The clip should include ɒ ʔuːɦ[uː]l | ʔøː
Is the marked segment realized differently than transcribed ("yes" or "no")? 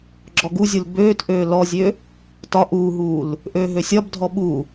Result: no